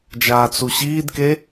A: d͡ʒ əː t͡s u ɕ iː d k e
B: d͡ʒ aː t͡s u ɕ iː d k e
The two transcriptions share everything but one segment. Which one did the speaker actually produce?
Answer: B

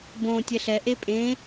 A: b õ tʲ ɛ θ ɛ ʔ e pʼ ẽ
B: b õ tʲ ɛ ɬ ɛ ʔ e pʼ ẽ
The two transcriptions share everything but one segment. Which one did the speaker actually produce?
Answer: B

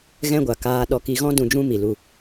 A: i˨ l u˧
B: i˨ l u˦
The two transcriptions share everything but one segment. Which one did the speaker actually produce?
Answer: A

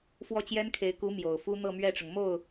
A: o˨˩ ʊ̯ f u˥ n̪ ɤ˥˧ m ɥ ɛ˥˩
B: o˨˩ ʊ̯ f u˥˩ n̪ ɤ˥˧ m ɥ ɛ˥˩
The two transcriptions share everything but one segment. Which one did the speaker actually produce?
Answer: A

